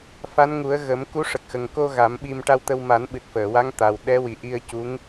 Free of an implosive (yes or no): no